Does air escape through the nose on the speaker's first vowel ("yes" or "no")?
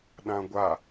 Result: yes